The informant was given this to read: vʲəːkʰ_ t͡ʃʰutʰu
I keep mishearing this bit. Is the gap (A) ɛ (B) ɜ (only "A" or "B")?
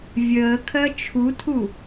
B